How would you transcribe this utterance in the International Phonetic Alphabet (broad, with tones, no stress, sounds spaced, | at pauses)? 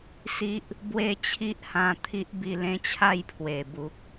s i˦ ʔ | b w e˥˧ t͡ɕʰ i˦ ʔ h ã˧ t̪ʰ i˦ ʔ b i˧ l ẽ˦ t͡ɕʰ a˥˧ j pʰ w e˨˩ b u˨ k̚